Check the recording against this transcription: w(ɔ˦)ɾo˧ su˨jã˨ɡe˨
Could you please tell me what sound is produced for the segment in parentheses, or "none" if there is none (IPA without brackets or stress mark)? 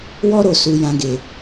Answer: ɔ˦